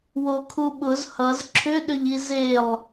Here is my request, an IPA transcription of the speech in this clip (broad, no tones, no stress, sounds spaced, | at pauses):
w o kʰ u ɓ ʊ z h ʌ z ǁʰ ʏ ɗ ʏ ʎ i z e lˠ